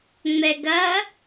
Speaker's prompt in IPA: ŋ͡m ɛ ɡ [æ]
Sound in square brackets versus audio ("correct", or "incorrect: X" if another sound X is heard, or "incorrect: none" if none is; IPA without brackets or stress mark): incorrect: ɐ